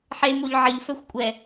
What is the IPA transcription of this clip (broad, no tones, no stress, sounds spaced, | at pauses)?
ħ e m o ʎ ʕ ə ʎ f œ xʷ kʷʼ ɛ